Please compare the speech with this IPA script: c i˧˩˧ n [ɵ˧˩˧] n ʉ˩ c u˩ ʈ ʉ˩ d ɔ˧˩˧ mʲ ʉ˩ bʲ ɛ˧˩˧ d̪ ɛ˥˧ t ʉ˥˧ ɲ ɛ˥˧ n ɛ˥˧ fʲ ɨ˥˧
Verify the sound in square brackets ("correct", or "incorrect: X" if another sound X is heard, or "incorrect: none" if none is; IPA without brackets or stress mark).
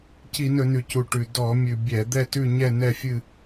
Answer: correct